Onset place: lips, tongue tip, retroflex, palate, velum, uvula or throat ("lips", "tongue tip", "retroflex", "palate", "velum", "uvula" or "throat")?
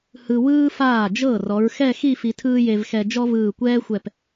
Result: throat